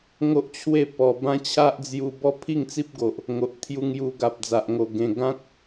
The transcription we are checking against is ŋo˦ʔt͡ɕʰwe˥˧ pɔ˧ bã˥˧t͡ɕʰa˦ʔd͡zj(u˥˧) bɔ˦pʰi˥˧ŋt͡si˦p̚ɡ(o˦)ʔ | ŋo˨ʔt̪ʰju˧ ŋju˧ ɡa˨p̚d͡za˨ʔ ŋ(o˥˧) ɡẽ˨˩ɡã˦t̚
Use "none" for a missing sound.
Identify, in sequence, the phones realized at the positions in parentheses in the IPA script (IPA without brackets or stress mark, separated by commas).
u˧, o˨, o˨˩